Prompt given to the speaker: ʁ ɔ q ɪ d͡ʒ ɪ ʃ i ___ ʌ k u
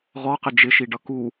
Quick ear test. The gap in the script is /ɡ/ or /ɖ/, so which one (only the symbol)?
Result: ɖ